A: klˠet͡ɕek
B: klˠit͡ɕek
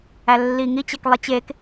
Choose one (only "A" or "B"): B